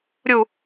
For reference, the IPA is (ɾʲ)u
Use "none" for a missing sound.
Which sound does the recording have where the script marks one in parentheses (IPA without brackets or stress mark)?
ɾʲ